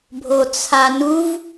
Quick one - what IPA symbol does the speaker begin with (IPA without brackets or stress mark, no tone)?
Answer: bʱ